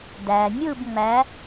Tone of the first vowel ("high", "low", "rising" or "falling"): low